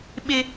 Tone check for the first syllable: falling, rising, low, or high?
high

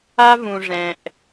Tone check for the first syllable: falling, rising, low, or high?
high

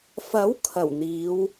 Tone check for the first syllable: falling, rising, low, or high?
rising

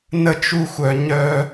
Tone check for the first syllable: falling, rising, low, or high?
high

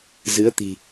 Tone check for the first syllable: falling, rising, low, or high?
rising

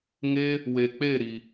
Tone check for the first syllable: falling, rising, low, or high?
high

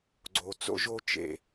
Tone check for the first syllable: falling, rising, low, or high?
low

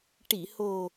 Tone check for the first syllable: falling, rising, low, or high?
low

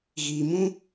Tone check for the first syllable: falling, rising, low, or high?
low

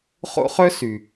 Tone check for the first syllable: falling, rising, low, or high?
high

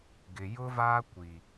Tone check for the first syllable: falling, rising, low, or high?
low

